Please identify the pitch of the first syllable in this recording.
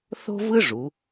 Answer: high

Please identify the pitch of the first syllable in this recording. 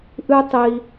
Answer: high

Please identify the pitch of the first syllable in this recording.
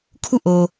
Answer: falling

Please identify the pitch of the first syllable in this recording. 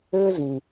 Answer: high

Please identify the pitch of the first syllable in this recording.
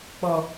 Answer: low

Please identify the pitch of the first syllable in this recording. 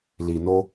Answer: low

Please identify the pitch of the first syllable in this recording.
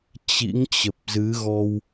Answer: rising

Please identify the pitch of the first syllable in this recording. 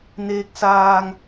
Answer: rising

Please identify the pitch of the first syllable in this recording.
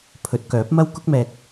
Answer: rising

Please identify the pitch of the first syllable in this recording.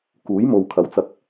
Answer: rising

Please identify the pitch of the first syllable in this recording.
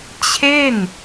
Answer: falling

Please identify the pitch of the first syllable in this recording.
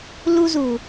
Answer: high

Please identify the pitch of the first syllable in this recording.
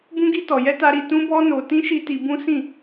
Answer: high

